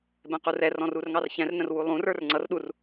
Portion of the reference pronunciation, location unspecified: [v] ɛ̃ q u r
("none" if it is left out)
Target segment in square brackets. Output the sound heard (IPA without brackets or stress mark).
b